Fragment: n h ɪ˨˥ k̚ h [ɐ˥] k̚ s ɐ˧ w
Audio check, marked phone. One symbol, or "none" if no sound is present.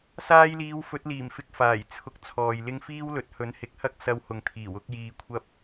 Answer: ɐ˥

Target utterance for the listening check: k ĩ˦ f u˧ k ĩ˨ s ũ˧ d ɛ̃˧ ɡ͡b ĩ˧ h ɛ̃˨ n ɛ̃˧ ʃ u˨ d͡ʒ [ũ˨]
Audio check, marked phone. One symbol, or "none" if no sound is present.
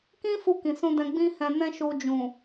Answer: ũ˨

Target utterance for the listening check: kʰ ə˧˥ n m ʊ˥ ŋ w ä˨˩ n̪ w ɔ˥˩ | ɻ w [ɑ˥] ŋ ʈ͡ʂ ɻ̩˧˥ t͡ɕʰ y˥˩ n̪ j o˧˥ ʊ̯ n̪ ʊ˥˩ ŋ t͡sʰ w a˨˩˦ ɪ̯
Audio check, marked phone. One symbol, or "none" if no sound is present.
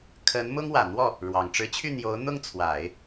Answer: ɑ˨˩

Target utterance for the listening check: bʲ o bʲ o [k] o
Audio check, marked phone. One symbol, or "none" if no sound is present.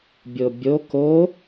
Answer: k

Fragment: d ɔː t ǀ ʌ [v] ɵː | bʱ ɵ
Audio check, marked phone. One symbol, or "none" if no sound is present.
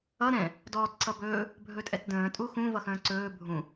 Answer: b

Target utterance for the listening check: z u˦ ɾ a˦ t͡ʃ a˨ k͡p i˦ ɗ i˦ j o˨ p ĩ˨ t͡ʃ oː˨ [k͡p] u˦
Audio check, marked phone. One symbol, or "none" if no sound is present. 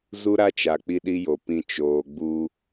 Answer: ɡ͡b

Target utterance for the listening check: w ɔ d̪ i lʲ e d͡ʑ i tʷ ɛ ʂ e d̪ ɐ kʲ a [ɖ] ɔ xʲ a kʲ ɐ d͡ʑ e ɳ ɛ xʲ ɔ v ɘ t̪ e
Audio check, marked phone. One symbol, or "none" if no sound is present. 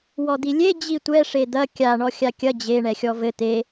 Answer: ɳ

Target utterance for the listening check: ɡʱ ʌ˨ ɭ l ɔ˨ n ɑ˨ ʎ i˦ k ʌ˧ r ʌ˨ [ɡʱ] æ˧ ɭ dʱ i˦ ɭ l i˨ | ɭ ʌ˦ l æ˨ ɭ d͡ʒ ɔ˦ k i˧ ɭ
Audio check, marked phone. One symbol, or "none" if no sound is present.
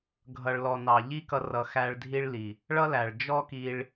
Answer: x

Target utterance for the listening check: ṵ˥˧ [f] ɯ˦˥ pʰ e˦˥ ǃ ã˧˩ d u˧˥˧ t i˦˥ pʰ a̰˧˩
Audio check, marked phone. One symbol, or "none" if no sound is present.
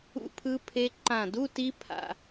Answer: pʰ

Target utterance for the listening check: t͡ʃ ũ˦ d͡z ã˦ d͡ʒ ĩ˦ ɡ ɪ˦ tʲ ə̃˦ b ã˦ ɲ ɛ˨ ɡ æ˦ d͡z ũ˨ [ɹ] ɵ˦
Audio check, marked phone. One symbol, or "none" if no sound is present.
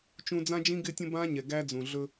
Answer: ɮ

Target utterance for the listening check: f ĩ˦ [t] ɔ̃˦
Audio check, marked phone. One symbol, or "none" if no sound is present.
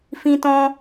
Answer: t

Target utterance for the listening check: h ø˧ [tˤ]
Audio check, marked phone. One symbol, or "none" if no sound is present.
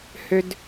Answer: d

